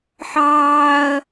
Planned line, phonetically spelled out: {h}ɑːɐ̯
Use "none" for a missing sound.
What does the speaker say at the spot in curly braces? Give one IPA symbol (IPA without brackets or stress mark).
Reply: ħ